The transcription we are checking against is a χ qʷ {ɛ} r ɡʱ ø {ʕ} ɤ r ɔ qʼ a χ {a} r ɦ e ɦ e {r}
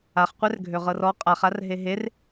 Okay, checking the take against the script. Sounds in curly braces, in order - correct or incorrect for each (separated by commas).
correct, incorrect, correct, correct